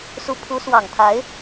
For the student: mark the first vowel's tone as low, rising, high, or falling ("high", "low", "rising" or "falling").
rising